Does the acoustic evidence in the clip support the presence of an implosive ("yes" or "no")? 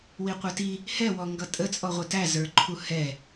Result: no